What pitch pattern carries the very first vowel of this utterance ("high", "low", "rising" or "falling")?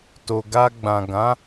low